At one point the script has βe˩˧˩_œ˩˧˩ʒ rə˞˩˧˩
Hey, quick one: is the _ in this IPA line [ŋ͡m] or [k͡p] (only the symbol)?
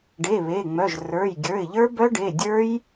ŋ͡m